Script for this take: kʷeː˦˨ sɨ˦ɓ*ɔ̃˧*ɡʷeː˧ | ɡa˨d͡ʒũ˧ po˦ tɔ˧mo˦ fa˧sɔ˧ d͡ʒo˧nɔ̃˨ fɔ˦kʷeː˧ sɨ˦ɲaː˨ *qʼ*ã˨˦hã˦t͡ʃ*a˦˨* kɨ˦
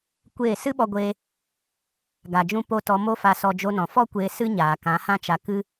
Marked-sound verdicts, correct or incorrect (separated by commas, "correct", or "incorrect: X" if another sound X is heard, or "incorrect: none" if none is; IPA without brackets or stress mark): incorrect: ɔ˧, incorrect: k, incorrect: a˧